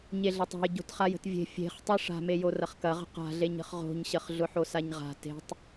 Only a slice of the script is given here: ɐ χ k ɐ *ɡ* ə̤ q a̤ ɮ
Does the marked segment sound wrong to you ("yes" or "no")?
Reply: yes